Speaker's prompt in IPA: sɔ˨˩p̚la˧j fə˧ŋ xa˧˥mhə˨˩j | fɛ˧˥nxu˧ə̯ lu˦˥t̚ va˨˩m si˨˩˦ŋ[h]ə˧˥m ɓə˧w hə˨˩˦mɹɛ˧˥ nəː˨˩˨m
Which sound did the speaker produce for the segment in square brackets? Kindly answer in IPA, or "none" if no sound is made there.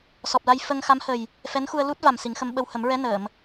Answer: x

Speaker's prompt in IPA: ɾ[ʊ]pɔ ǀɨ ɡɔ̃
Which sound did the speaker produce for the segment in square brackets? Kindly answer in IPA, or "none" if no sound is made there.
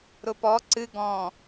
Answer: ʊ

